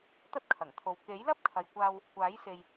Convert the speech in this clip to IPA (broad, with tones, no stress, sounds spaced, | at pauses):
t̪ ɐ˥ t̚ kʰ ɐ˨˩ ŋ t̪ʰ o˨ w k e˨˥ j l ɐ˥ p̚ kʰ ɐ˨ j kʷ aː˧ w | kʷ aː˨˥ j s e˧ j